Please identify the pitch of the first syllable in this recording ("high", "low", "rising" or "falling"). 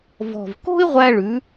low